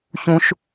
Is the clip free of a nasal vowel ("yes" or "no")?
no